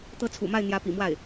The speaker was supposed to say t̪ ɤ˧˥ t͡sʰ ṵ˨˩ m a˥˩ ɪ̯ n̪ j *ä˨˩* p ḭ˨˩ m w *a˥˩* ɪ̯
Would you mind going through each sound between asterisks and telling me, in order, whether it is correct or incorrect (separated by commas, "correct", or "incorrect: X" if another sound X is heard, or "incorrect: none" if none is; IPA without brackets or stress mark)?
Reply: incorrect: ä˧˥, correct